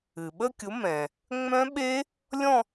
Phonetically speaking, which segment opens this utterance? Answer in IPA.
ɨ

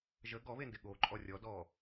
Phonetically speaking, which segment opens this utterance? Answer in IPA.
ʒ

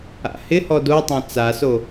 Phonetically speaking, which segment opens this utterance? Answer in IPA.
a̰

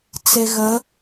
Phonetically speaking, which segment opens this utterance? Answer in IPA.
t͡s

